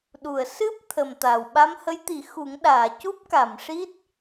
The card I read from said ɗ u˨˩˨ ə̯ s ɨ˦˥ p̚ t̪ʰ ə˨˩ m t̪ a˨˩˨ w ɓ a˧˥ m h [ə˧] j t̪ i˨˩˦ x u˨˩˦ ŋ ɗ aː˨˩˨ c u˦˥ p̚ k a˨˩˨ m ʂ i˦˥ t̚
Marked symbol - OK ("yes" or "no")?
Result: no